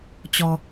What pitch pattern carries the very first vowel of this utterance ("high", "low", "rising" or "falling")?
low